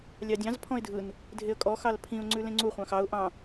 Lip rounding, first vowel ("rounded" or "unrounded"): unrounded